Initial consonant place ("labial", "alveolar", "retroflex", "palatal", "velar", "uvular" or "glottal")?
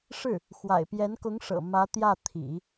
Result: retroflex